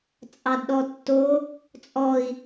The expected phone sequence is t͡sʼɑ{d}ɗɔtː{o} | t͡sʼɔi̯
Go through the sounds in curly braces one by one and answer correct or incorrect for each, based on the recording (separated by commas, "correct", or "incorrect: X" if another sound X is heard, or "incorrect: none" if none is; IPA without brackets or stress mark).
correct, correct